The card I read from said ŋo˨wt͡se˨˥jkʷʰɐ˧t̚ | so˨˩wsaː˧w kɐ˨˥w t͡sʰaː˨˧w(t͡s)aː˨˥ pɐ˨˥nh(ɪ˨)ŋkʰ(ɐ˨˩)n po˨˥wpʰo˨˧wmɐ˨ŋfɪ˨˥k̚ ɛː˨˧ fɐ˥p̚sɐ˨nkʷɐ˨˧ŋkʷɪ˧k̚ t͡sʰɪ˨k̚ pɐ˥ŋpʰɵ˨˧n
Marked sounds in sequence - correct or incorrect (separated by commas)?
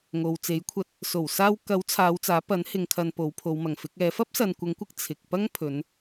correct, correct, incorrect